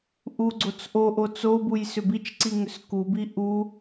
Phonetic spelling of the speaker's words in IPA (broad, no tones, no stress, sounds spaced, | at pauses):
ʔ u ɡ͡ǀ o t͡s ʔ o ʔ o t͡s o b u j s ʏ b i t͡ʃ ǀ i ŋ ʏ s k u b i ʔ u